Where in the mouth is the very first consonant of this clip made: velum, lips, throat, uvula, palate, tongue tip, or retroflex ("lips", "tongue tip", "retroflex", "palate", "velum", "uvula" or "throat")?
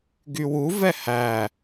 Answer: velum